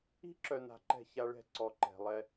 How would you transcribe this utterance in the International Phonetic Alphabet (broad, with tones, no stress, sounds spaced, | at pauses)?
i̤˦ ǁ œ˨ n a̤˨ ǃ ɛ̤˦˨ ç a˦ ɭ ɛ̤˦˨ ǀ ɔ˨ ǃ ɛ̤˨ lˠ ɛ˦